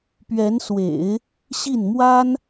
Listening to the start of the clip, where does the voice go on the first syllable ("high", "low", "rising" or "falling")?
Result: rising